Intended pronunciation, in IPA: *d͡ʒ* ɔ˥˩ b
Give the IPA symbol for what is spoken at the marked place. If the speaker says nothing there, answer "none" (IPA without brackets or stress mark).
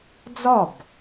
d͡z